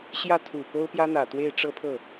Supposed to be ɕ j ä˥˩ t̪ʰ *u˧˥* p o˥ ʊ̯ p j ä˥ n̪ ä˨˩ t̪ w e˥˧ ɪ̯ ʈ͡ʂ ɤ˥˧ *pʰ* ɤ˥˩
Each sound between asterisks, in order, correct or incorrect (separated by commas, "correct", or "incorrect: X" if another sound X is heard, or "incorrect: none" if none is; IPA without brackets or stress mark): incorrect: u˨˩, correct